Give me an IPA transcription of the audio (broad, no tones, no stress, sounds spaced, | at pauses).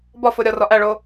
b ɒ f o ɾʲ ɒ r ɒ ʔ æ ɭ o